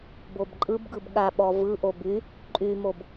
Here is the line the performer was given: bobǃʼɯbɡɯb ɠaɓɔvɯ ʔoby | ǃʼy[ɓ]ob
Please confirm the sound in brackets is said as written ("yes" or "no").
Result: no